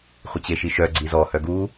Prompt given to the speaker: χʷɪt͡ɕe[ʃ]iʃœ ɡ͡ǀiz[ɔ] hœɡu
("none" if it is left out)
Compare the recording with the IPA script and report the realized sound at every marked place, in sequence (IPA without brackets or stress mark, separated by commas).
ʃ, ɔ